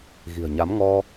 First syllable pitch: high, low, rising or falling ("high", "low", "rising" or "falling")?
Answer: low